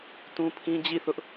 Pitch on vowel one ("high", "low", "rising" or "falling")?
high